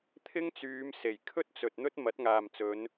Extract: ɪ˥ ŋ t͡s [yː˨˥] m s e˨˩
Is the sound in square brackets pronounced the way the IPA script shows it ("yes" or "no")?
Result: no